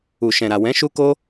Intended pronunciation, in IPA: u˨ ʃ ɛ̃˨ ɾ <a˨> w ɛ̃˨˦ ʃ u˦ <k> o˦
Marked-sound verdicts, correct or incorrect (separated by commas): correct, correct